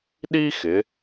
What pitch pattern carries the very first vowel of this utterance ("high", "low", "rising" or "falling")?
high